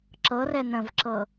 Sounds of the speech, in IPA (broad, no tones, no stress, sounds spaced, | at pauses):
ǁ ɤ r ɛ n ə̃ v ǁ ɤ